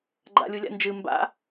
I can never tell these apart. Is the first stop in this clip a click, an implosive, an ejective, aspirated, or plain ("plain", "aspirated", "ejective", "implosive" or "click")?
click